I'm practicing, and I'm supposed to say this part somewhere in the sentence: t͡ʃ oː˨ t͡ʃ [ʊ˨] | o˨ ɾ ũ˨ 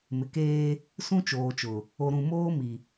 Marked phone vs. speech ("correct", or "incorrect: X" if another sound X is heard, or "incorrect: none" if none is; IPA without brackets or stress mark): correct